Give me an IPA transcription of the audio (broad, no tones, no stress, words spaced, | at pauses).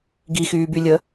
ɡixyːbylʲə